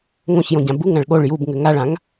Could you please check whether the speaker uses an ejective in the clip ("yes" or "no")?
no